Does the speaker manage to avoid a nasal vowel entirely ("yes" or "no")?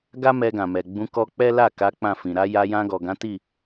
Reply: no